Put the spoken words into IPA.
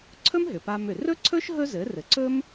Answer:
ǀʰ ɵ˥ m ɦ ʏ˩ p a˧ m ʏ˩ r ɵ˥ ǀʰ ɵ˥ ʃ ɦ ɵ˥ z ɘ˩˥ r ɘ˩ ǀ ɵ˥ m

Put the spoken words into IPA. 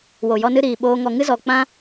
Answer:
w o˨ j ɔ˧ n ɨ˧ ɾ iː˨ ɓ oː˧ ŋ ɔ˨ ŋ ɨ˦ z ɔ˨ k͡p ã˦

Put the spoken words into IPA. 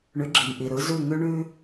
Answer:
ɳ ʉ˩˥ ɡ͡ǁ i˩ m ʔ i˩ ɾ ɯ˩˥ z ʉ˥˩ ŋ ʉ˥ ɳ ʉ˥

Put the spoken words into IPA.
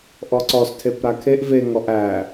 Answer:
ʔ ɔ ǀ ɔ s tʰ e p ɾ a kʰ e ʔ v e ŋ ɔ ʔ æ

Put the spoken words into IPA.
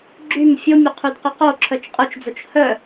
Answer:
ɡ͡ǁ y m fʲ o mʲ o qʰ y d q y q o ǁʰ œ t͡ʃ qʼ o t͡ʃ d͡z o t͡ʃ h œ

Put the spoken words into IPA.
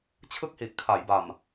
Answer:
t͡ɕʰ ɯ˥˩ k̚ h i˨˩ ʔ kʰ a˩˦ j b a˨˩ m

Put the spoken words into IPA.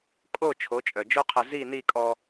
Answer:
kʼ o˦˨ t͡ʃʰ o˨˦ t͡ʃʼ œ˨ d͡ʒ o˦ qʰ ə˧ z i˦˨ n i˦˨ kʼ ɔ˧

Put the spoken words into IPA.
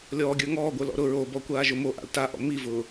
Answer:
lʲ ɔː ɡʲ ə˞ ŋ ɔː ɡʷ ə˞ l ɔ̰ ɾ ʊ ɹ o b ɔ kʷ aː ʒ ʊ m o ʔ a̰ l t a ʔ ɔ̰ m i v ʊː

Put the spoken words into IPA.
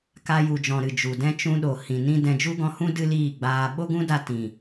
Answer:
k a˧ j u˨ d͡ʒ ɔ̃˨ ɾ ɨ˨ d͡ʒ u˨ d ɛ̃˦ t͡ʃ ũ˧ ɗ o˨ h ĩ˨ n ĩ˦ d ɛ̃˧ d͡ʒ u˦ ɡ ɔ̃˧ h ũ˦ d ɨ˦ l iː˦˨ ɡ͡b aː˧ ɓ o˦ ɡ ũ˦ d a˧ t ĩ˨

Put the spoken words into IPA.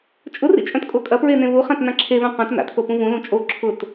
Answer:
t͡ʃʼ ʊ r ḭ t͡ʃʼ œ̃ t kʼ o kʼ ɐ p ɹ e n ẽ β u χ ã t n ã ǁʰ e β œ̃ q œ̃ t n a̰ t θ o p ũ v ũ l ũ t͡ʃʼ o ǁʰ ʊ t

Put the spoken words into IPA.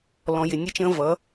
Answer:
l ɔ̃˨ j ɪ˨ nʲ ɛ˦ t͡ʃ ə̃ː˦ v ʌ˨˦

